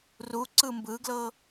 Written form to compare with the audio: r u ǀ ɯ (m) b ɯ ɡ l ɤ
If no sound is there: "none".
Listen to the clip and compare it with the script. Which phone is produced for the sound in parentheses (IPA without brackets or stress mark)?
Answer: m